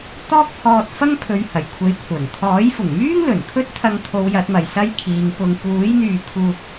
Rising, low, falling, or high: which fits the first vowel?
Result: high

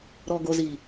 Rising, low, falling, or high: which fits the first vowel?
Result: low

